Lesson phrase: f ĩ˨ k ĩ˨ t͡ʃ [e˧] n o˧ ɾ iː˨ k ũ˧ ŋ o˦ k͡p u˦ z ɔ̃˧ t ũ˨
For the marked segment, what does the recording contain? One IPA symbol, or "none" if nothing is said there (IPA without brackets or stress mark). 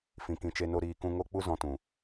e˧